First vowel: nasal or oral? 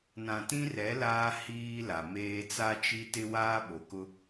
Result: nasal